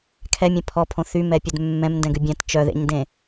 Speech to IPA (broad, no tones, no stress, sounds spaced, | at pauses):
kʰ ɛ mʲ ẽ pʰ ɔ pʰ õ θ y m ɛ pʲ ø d mː ɛ̃ m n d ɛ̃ ɡ ʉ bʲ ɛ̃ t t͡ʃ œ ð ḛ ɲ d ẽ